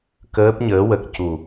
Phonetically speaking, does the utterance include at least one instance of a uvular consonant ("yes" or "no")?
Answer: no